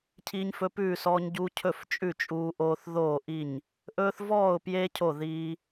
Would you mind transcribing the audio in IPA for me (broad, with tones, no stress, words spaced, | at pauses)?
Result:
cʰiː˦ɲfɵ˦pʉː˥˨sɔː˦ɲ ɟu˦cʰɵ˥˨f t͡ʃʼʉ˥˨t͡ʃʼuː˦ʔoː˦θ ðoː˥˨ʔi˥˨ɲ | ʔɵː˦θvɔː˥˨ʊ̯pje˦ cʰo˥˨ðiː˦